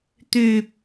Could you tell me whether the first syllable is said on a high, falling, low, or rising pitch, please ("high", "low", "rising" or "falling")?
low